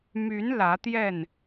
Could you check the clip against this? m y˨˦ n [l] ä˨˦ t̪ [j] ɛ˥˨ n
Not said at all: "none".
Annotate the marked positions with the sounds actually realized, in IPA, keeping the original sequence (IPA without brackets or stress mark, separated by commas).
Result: l, j